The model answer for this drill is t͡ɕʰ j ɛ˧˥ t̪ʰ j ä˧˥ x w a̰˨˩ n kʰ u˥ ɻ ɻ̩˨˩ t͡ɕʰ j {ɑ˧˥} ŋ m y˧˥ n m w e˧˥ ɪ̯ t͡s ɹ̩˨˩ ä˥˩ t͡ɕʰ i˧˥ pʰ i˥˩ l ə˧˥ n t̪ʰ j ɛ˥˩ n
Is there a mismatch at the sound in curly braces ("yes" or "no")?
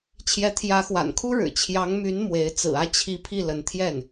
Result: no